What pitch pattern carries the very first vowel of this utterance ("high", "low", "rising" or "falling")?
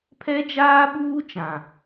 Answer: high